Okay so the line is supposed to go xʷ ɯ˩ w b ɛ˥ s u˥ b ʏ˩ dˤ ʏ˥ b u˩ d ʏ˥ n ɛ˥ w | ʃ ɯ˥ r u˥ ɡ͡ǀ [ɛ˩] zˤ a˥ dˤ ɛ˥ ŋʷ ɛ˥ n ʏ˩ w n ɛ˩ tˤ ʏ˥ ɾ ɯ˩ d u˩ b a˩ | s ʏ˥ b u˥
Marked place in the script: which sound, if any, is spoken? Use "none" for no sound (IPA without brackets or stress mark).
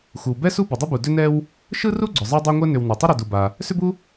ʏ˩